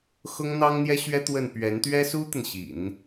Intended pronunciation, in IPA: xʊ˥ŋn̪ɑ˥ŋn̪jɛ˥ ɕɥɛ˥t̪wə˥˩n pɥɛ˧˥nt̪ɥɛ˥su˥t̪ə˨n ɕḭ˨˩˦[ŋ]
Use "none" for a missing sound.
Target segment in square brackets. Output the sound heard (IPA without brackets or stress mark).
n